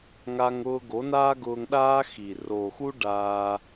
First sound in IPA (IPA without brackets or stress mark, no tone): ŋ